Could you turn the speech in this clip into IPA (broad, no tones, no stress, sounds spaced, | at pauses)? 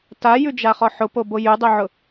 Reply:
t a j ʉ d͡ʒ a χ ɔ ħ ʊ p o b o j ʉ dˤ ʉ ʕ ʊ